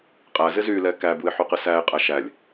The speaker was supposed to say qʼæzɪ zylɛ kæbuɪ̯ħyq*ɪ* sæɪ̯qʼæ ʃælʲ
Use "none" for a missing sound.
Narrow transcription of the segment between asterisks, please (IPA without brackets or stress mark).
ɪ